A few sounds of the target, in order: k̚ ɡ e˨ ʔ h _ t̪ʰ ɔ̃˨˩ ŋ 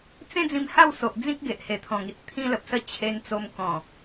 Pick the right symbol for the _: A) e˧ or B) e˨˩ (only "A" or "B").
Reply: B